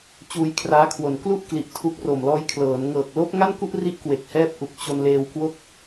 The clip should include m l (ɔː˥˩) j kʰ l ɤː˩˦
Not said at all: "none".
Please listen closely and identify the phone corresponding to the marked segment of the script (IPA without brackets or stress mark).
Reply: ɔː˦˥